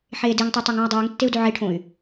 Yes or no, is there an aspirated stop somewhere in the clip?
yes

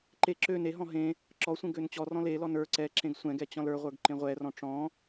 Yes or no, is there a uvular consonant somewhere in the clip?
yes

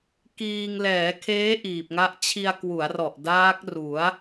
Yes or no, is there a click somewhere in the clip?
no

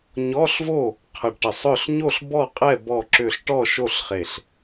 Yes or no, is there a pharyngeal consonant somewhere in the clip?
no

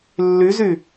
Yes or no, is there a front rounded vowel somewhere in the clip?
yes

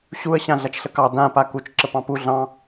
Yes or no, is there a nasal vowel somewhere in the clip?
yes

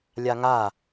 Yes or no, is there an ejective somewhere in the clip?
no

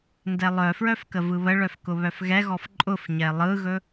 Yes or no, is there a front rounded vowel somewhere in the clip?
yes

